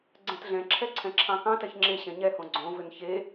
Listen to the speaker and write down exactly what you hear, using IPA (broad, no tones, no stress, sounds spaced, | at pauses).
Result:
ɡ͡ǀ ɛ̃ t ɮ ɛ̃ ǁʰ ɛ ǀʰ ɛ̃ ǁʰ ɑ̃ k ɑ̃ t ɛ ç ŋ͡ǁ e ɕ ɛ̃ ɲ ɛ h õ ɡ͡ǀ õ v ʏ n ç e